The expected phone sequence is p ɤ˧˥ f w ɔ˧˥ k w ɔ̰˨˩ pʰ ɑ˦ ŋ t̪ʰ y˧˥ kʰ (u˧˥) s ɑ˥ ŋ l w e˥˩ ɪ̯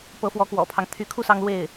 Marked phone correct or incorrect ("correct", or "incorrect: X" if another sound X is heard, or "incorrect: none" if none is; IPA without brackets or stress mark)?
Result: incorrect: u˥˩